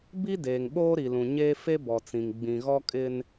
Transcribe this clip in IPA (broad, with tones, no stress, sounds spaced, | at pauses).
b i˦ d eː˨ ŋ ɓ oː˦ ɾ i˨ l ũ˨ ɲ eː˦ f e˦ b ɔ˨ t͡s ĩ˨ ŋ ɡ͡b ĩ˨ ɣ ɔ˦ kʼ ɪ˦ n